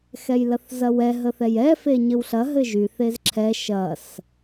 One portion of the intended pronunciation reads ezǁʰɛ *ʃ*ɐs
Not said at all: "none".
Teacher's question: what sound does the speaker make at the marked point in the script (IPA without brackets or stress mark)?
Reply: ʃ